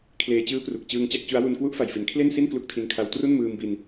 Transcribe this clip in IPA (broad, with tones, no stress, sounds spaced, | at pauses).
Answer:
kʰ l eː˧ t͡ɕ ɯː˦˥ p r u˨˩ k̚ t͡ɕ ɯː˧ ŋ t͡ɕ a˥˩ k̚ t͡ɕ u˦˥ a̯ w u˧ n k w u˦˥ ʔ f a˨˩ j f i˩˦ n kʰ l e˥˩ n s i˥˩ n k l u˦˥ k̚ tʰ i˧ n kʰ a˧ w t r u˥˩ n m ɯː˧ m b i˧ n